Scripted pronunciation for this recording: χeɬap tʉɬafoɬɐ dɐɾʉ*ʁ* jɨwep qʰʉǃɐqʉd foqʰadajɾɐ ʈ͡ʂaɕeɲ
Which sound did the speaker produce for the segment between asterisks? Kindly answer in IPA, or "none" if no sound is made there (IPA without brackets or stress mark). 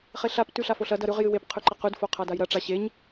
ʁ